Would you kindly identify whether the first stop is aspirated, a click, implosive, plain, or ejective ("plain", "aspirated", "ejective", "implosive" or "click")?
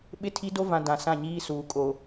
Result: implosive